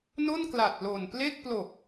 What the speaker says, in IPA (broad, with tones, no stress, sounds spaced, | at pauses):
n o˥˩ n k l a˨˩ t̚ l o˨˩ n p l e˥˩ k̚ p l o˨˩ k̚